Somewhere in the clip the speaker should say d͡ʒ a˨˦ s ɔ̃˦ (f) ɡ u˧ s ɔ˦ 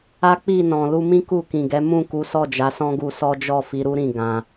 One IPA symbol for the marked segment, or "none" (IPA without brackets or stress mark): none